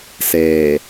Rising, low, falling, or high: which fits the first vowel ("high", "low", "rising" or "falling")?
low